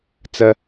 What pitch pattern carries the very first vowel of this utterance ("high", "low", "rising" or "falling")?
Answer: high